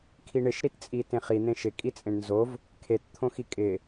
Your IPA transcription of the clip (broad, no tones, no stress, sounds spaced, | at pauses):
kʰ i ɳ ɪ ʃ ɾ i t t͡sʼ i t ẽ χ i n̪ ẽ ʃ ɪ kʼ i t͡sʼ ẽ ɳ n z o v | kʰ e t t̪ʰ õ x i kʼ ɪ